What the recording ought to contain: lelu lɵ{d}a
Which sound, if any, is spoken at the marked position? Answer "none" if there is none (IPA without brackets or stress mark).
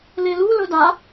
d